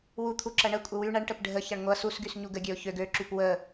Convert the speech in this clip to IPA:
w u t̪ʰ u ǁ ɐ ɳ ə kʷʼ ə w y ɳ ɐ ɳ ʈ ə p ɖʱ ə ç ɐ ɳ ŋʷ ɐ s u s ɡ y s ɲ u ɡ ə ɡʲ ø ʊ̯ ç ø ɡ ø ǁ y p w ə

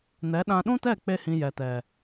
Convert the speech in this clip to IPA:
n ɛ˨˦ ɗ ã˧ ɗ ũ˦ t ɛ˦˨ k͡p e˦ h ĩ˧ j ɛ˨ t ɛ˨

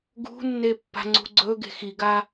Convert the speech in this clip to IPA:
ɡ ṳ nː e pː a̤ ŋ͡ǀ ṳ ɡ͡ǀ ɵ ɡ e̤ x i ɡ a

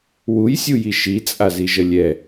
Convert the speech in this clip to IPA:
w u j sʲ u j i ʃ i t͡sʼ a z i ʒ ə lʲ ɛ

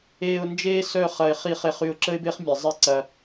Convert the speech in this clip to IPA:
eː˨ ʊ̯ n d͡ʒ eː˦ s œ˦˨ χ ɐ˨ ɪ̯ χ i˨ χ e˨ χ y˨ ʊ̯ ǁ ə˦ ɪ̯ b e˦ χ mʲ ɛ˨ zˤ i˦ ǀ ɐ˦

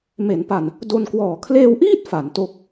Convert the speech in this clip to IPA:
m e˩˦ n p a˨˩ n | d o˧ n k w ɔː˨˩ kʰ l eː˧ w ʔ iː˥˩ t̚ f a˩˦ n t o˦˥ k̚

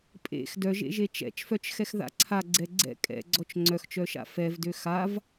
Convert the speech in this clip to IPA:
pʼ ḛ x d œ ʒ ḛ ʒ e t͡ʃ ɛ̰ t͡ʃ f œ t͡ʃ x ɛ x ð a̰ ǀʰ a ɡ͡ǀ ɛ ɡ͡ǀ ɛ̰ kʼ ɛ̰ ɡ͡ǀ ɔ t͡ʃ ŋ͡ǀ œ x t͡ʃ œ ʃ a̰ f ɛ v d ø x a v

